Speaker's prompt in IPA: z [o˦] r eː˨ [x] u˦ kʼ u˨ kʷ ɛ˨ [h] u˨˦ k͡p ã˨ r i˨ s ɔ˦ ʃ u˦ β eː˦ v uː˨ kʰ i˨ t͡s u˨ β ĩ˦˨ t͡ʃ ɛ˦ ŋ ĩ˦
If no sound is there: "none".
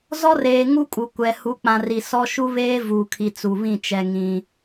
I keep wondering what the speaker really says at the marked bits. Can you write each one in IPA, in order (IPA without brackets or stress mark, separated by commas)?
ɔ˦, ŋ, h